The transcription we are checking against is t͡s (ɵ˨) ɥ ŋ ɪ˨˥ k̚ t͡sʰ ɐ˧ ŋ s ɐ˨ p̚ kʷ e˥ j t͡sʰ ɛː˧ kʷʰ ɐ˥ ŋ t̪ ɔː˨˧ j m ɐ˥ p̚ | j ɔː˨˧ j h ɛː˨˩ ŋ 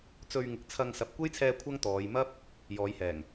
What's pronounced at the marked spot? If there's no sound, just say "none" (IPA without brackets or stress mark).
ɵ˧